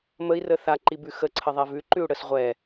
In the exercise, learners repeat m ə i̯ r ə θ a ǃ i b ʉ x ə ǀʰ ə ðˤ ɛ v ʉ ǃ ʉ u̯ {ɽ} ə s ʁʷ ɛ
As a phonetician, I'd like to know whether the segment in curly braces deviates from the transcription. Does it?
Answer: no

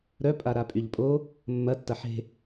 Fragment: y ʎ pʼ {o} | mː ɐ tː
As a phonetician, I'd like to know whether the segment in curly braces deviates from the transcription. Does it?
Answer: no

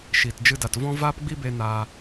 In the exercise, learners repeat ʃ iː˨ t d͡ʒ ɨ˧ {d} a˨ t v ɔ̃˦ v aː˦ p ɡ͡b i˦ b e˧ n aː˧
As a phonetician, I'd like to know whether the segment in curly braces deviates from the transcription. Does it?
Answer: no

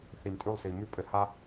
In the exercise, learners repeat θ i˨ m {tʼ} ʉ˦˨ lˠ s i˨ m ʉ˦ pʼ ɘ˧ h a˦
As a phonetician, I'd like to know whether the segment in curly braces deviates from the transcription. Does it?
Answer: no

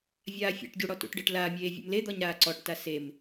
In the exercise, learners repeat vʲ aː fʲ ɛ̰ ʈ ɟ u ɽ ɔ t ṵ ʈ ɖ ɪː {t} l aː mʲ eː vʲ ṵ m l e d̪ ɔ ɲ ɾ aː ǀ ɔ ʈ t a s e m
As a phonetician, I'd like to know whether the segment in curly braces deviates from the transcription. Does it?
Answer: yes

